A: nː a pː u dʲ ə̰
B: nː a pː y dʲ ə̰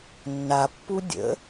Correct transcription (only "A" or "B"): A